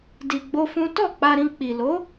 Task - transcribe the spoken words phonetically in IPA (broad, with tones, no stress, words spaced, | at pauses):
di˧ɡ͡bo˦fũ˦ tɔ˦˨k͡pa˧ɾĩ˧ k͡pi˨lo˨˦